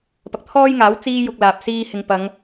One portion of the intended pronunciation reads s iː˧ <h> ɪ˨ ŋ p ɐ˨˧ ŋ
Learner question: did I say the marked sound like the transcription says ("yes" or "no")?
yes